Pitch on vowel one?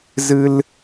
high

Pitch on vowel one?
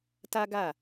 high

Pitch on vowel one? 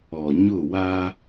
low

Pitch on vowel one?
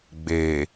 low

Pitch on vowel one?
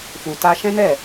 low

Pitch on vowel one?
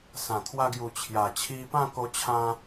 low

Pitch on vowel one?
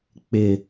low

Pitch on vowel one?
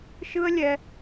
high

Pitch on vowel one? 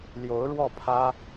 rising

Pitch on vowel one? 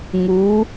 rising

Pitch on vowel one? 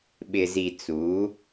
low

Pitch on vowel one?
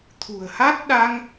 low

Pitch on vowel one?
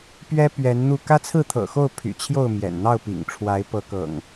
high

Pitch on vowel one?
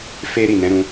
high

